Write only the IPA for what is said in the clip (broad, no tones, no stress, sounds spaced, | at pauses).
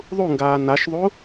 ðˤ u ŋ ɡ aː n a ʃ ðˤ u